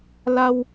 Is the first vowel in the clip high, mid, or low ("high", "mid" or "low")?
low